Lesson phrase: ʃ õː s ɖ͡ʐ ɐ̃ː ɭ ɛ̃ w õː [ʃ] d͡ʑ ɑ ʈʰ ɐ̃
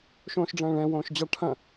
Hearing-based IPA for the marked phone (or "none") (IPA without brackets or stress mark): ʃ